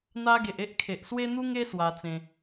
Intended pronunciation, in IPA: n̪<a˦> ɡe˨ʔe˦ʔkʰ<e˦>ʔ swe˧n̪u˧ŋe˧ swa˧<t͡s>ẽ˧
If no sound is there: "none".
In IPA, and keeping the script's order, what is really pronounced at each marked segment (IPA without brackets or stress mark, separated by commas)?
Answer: a˧, e˨, t͡s